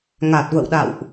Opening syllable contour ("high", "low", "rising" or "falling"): low